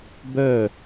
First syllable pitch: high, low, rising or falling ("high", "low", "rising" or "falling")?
falling